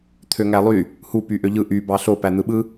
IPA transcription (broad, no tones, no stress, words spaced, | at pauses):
t̪ʰøŋælˠy | hu pyʔøʎɯ ʔy bɑɬo pæn̪ɯɓɯ